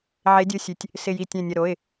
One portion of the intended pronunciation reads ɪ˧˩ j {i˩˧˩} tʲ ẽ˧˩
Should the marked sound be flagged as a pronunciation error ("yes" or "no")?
yes